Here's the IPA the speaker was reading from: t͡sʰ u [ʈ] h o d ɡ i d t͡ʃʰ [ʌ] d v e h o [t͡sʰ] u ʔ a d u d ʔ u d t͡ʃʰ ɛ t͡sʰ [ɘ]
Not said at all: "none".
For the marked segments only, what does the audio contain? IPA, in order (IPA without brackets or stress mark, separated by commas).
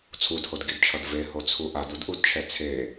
d, ʌ, t͡sʰ, e